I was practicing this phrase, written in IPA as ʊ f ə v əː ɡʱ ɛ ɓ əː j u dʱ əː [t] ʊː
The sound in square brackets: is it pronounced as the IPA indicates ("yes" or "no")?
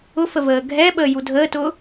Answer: yes